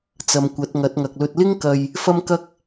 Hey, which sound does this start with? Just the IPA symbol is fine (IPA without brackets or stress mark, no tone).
t͡s